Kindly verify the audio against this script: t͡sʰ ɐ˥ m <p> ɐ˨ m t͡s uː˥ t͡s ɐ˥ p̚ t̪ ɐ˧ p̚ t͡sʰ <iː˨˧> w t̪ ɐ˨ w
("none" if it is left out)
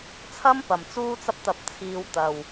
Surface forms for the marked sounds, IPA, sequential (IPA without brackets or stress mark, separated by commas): p, iː˧